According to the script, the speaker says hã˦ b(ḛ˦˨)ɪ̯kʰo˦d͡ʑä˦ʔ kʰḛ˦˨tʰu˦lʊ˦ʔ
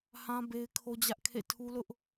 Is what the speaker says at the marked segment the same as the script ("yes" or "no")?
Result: no